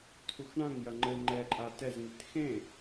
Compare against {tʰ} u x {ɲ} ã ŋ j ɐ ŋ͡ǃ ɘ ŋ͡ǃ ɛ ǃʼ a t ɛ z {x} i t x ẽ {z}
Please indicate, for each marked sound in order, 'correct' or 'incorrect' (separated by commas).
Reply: correct, incorrect, incorrect, incorrect